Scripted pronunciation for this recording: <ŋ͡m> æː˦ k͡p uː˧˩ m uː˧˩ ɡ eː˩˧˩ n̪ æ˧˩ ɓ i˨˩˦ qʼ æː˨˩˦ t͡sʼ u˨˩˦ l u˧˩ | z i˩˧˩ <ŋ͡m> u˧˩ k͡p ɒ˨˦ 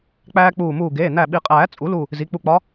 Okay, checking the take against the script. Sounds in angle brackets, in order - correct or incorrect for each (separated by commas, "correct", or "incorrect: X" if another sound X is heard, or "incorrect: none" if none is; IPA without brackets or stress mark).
incorrect: k͡p, incorrect: k͡p